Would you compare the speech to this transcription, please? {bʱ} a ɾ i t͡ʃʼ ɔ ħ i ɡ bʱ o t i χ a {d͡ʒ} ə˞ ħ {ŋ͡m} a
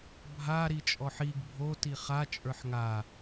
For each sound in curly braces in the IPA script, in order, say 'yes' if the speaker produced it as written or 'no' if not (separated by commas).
yes, no, no